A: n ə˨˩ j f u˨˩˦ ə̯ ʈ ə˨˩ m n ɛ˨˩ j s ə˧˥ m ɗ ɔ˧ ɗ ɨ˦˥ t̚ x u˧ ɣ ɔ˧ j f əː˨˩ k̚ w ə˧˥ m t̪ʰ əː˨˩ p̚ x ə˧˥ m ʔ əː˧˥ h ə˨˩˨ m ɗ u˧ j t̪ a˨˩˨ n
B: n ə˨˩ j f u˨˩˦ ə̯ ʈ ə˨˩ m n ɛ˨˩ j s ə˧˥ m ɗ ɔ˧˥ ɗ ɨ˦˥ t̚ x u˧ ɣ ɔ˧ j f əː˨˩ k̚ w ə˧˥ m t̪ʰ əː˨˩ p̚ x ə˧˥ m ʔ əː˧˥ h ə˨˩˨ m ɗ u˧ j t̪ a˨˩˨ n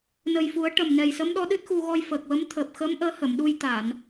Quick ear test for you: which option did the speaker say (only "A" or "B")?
B